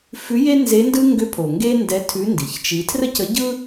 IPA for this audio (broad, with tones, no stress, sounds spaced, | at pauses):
f ʉ˧˥ j e˥ n z e˧˥ n d ɯ˥ ŋ ɡ ʏ˧˥ pʰ o˩ ŋ ɡ e˥ n d ɛ˧˥ tʰ ʉ˧˥ n d i˩˧ ç t͡ʃ i˧˥ tʰ r ə˥ c ə˧˥ ɟ ɯ˥